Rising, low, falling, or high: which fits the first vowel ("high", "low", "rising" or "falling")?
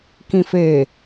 low